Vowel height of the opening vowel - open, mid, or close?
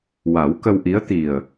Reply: open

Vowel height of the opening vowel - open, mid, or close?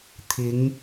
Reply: close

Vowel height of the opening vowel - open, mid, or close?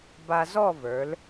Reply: open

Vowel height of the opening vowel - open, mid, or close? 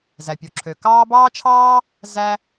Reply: open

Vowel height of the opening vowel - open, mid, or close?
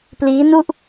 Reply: close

